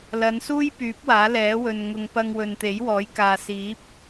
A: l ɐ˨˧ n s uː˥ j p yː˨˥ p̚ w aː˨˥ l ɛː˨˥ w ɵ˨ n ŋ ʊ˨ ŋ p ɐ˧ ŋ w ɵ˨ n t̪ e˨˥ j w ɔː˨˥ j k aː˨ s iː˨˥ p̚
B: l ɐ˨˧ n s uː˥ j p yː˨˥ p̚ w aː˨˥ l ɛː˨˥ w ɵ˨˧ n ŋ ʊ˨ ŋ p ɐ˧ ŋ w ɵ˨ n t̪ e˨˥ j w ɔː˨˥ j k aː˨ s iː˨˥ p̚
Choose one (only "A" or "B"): A